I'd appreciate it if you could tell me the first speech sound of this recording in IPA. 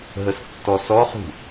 ɦ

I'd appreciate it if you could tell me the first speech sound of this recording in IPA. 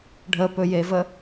ɖʱ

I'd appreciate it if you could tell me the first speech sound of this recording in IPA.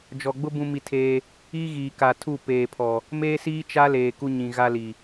d͡ʒ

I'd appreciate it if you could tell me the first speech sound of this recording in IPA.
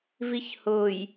v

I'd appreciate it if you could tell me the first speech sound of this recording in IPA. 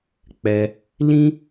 k͡p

